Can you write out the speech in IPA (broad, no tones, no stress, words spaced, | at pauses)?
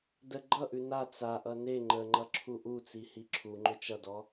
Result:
də ɡ͡ǃʌʔʉ na t͡saʔʌ ne ŋ͡ǃəŋ͡ǃʌ ǁʰuʔut͡si hiǁʰuŋ͡ǃʏ t͡ʃʌdɔ